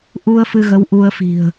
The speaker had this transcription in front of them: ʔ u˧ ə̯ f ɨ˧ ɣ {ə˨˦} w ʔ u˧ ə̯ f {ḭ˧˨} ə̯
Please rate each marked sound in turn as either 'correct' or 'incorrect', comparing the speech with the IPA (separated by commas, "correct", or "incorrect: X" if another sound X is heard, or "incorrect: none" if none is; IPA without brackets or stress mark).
correct, incorrect: i̤˨˩